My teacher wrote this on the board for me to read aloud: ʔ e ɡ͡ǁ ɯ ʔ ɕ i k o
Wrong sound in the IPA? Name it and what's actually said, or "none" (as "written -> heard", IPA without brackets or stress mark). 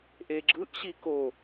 none